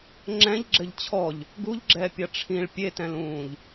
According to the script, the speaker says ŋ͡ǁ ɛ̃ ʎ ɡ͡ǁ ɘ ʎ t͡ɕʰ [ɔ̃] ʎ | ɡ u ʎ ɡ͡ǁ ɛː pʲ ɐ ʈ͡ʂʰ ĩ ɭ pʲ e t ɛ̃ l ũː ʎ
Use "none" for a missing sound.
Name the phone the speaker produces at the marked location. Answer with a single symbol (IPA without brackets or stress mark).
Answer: ɔ